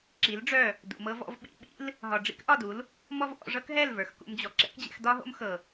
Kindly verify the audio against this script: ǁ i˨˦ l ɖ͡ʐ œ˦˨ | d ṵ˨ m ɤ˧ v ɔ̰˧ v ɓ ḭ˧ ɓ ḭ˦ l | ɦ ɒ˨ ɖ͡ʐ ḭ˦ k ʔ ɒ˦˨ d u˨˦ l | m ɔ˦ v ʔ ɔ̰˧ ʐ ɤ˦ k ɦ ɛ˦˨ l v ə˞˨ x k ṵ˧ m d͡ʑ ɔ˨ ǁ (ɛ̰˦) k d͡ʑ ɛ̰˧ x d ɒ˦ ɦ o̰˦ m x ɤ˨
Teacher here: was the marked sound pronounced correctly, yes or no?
yes